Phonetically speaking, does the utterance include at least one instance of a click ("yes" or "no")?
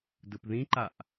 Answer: yes